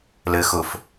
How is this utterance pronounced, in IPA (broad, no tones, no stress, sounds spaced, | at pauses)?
l ɘ x ʊ f